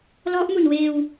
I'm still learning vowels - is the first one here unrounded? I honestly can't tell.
no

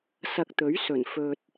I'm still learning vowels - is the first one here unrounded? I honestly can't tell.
yes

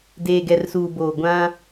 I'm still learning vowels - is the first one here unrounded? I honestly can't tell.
yes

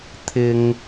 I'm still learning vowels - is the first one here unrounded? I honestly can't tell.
yes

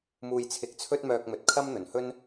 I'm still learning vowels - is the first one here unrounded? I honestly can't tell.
no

